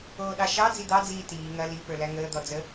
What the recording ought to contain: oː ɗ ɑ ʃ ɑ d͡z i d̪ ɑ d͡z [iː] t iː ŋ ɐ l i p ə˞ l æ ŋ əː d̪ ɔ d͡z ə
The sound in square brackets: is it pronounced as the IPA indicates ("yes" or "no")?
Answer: yes